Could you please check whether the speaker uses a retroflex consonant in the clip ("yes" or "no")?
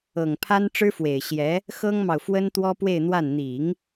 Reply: yes